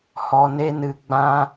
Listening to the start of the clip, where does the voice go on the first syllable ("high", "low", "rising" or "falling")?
low